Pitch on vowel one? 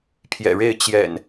low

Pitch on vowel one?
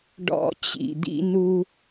high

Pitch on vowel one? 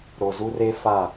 low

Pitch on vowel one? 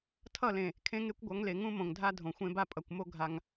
falling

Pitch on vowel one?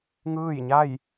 falling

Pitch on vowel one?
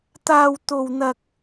high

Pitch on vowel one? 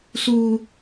high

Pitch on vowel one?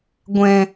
low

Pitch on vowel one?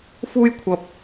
high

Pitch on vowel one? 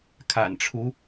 low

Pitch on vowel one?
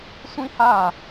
high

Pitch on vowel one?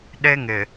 high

